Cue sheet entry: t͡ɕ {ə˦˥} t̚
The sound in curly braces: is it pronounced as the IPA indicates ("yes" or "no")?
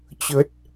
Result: yes